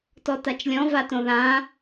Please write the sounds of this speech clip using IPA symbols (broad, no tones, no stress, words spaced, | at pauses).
tɔtat͡ʃlʲɔ̃ vatõðã